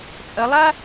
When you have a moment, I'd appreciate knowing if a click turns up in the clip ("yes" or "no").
no